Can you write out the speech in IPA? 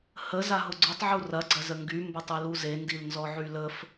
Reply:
hə zaɦʊɡ͡ǀutˤʕu rɐ ɡ͡ǀɐzəŋɡy mbətˤiluze ndilnzɔʕyləf

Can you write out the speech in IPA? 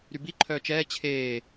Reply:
ɾybi ǃʰœːt͡ʃɛː t͡ɕʰeː

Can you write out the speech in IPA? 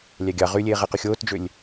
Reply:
lʲæɡʲɑ ʁylʲeːʁeqy xʲoːtd͡ʒølʲ

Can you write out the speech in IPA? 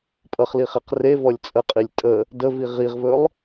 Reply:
pʼʌχliχeq revɔlʲ t͡sʼəqʼilʲ tʼə | dəvi ʁiʁvɵlˠ

